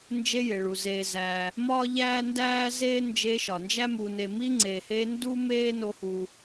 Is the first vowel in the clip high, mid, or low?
mid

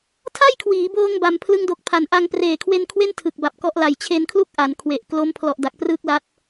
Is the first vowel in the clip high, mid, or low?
low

